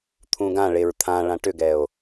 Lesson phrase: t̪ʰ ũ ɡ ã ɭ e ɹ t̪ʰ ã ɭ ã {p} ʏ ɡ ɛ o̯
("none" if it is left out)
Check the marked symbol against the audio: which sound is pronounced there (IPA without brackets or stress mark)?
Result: ʈ